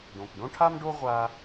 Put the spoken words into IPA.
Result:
ɖõ˩kɖõ˥ʈʰa˥mɖo˥ ʁʷa˧

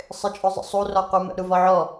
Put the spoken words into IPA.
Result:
sˤɪt͡ʃʼʊzˤə̰sˤu rɒqumə̰ ɾuvɒʕɔ

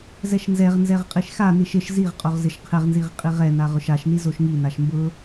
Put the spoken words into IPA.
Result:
zɛʃnzɛʁ nzɛʁqʼiʃxa niʃɪʃ ziʁqʼoʁ zɪʃqʰɪʁnziʁ qʼiʁɛna ʁʊʃaʃni zoʃŋi naʃmbʊ

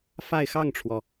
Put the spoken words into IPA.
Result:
fa˥˧ɪ̯xɑ˥˩ŋʈ͡ʂʰwɔ˩

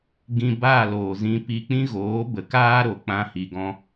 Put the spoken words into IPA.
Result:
ɡĩ˧baː˦˨ loː˨zĩ˧ pi˧k͡pĩ˦ ɣoː˨˦bə˨kaː˦ɾo˨ k͡pã˦hi˧ɡɔ̃˦

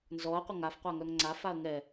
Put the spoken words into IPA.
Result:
nzɔɐ̯qʷɘ ŋafqʷa ŋœŋŋ͡ǀafaɐ̯ ŋɛ

